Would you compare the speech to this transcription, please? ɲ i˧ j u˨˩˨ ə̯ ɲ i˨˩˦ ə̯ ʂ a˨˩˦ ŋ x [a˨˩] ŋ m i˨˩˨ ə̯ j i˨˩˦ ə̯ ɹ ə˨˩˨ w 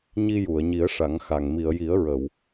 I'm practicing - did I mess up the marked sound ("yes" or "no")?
no